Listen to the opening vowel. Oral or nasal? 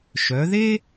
oral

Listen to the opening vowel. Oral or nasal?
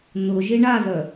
oral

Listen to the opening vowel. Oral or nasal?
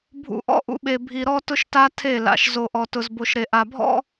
oral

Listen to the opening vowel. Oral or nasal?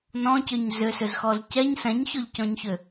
nasal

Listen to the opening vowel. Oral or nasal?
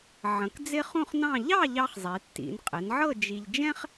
nasal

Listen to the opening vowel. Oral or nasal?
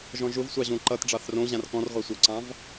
nasal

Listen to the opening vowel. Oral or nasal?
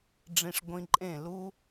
nasal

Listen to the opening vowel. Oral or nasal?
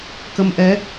oral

